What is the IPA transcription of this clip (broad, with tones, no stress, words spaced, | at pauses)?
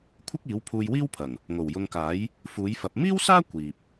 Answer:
kʷʰɪ˥k̚iː˨˥wpʰuː˧j wiː˥wpʰɐ˨˩ŋ | ŋo˨˩wjʊ˧ŋkaː˨˥j | fuː˨˥jfɐ˨˥p̚ miː˥wsaː˥ kʷiː˨p̚